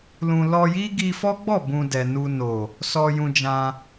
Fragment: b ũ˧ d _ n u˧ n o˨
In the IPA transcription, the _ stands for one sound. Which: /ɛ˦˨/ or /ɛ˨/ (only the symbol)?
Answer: ɛ˨